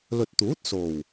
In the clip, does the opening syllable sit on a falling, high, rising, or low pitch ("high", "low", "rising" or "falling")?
low